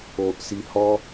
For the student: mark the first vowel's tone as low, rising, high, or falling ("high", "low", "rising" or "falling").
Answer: low